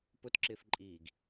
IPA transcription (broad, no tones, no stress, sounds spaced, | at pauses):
p ʊ t ǁ ɪː f ǃʼ iː ɡ